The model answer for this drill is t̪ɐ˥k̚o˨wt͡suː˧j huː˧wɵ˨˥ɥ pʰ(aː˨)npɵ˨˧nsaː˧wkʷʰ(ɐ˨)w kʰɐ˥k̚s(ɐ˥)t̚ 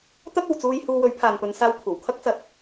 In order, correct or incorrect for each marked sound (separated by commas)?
correct, incorrect, incorrect